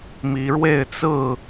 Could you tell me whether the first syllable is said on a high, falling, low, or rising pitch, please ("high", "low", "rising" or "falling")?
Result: rising